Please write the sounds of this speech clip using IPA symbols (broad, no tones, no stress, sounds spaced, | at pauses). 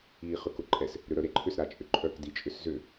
iː χ ʏ k ʊ ǃʼ ɛ s | ɾ ʏ ɾ œ ɾ e ǃʰ ʏ s ɾ a t͡ʃʼ ʏ ǃʼ œ k d i t͡ʃʼ ʏ s z ʏ